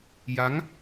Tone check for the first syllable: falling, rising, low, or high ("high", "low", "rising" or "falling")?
rising